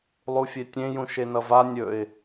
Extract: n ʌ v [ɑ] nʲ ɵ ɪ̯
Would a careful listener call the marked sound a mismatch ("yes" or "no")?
yes